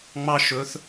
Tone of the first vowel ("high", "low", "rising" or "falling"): high